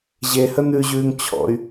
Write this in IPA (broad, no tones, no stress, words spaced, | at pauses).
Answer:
ʑehə n̪ʉʑʉːŋ t͡ɕʰɔ̰y̯